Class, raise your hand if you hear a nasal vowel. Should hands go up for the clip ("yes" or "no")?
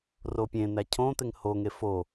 yes